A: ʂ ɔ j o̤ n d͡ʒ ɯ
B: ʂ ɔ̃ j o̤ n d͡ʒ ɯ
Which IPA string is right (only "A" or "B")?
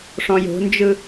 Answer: B